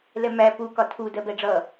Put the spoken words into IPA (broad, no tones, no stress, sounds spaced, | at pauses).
l ɛ m æ p u k ɒ tʰ u d ɜ b ɛ ɖ͡ʐ ʌ